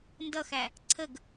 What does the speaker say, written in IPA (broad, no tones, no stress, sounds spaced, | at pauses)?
n d ʌ x æ | ǀʰ ə ɡ